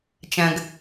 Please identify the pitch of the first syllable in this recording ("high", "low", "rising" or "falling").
low